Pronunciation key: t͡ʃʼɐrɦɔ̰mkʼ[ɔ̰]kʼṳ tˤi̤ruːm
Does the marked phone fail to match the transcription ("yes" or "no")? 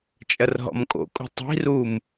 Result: yes